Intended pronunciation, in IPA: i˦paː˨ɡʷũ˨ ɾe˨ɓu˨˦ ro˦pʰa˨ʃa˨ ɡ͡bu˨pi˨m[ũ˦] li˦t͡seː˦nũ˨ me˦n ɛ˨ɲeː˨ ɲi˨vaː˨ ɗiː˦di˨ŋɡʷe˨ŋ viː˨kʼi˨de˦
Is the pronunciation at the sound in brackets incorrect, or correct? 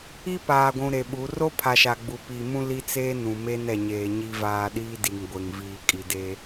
correct